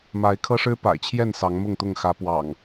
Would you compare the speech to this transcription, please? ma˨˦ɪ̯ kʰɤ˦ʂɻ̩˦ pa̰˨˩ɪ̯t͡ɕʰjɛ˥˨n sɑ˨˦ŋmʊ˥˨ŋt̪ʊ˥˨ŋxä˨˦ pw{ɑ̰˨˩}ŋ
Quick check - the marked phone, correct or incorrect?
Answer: correct